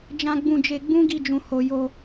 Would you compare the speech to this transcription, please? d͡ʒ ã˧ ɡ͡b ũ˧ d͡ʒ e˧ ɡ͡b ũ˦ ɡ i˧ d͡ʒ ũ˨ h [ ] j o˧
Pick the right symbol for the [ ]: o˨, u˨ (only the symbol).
o˨